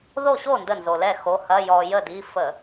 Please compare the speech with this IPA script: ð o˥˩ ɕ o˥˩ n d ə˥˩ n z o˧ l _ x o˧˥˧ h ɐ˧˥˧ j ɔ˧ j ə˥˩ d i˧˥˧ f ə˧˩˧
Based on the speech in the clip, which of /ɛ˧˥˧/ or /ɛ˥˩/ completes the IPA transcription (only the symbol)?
ɛ˥˩